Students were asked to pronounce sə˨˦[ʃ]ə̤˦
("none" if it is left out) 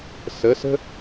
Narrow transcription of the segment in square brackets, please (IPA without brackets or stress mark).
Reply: s